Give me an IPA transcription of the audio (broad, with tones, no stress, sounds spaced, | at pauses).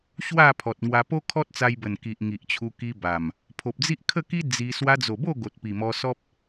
ɕ w a˥˧ pʰ ɔ˨ t̚ ŋ w a˧ p o˦ kʰ ɔ˦ t̚ t͡s a˧ j b ə˨˩ n k i˨ ʔ ŋ i˨ ʔ t͡ɕʰ u˧ k i˧ b a˨˩ m | pʰ o˨ p̚ d͡z i˦ ʔ kʰ ə˥˧ k i˦ d͡z i˧ s w a˧ d͡z o˨˩ b o˥˧ ɡ o˨ t̚ p i˨˩ m ɔ˧ s ɔ˦ p̚